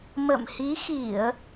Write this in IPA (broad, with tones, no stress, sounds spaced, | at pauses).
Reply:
m ə̰˧˨ m h i˨˦ x i˧˩˨ ə̯